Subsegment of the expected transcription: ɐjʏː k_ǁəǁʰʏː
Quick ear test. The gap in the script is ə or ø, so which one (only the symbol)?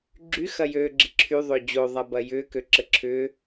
ø